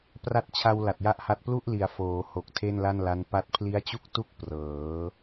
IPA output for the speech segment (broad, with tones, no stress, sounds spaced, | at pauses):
p r a˦˥ t̚ t͡ɕʰ a˧ w l a˨˩ t̚ j a˥˩ ʔ h a˥˩ t̚ p l u˥˩ ʔ l i˩˦ a̯ f oː˩˦ h o˨˩ k̚ tʰ e˥˩ n l a˥˩ n l a˦˥ n p a˥˩ t̚ pʰ l i˦˥ a̯ t͡ɕ u˥˩ k̚ t u˥˩ k̚ p r ɤː˩˦